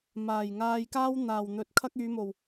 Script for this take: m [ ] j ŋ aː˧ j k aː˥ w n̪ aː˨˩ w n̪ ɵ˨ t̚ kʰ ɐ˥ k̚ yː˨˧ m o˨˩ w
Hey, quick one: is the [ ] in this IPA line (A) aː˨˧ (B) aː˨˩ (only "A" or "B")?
B